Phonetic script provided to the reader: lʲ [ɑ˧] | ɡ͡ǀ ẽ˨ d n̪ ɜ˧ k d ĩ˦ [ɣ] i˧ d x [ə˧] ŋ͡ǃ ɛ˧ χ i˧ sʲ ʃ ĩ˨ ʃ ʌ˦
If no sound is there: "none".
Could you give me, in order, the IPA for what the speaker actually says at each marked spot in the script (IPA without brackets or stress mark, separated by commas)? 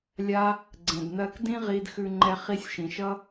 a˧, ʁ, ʉ˧